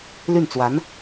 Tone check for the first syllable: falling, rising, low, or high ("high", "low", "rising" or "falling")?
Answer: falling